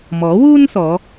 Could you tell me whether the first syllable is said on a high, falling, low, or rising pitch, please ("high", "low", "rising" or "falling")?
rising